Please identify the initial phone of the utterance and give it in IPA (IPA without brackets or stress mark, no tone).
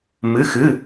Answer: m